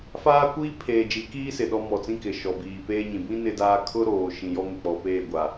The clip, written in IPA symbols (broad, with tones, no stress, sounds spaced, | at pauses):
f aː˦ kʷ iː˦ pʰ eː˨ d͡ʒ i˨˦ k iː˦ s ɪ˨ ɗ ɔ˦ m ɔ˨ t͡s ĩ˦ k ɪ˨ ʃ ɔ˨ b iː˨ p eː˦ ɲ ĩ˨ b ĩ˦ n ɪ˦ d aː˦ kʰ ʊ˦ ɾ oː˨ ʃ ĩ˨ j ɔ˦ ŋ ɪ˨ k͡p ɔ˨ p eː˦˨ ɡʷ a˨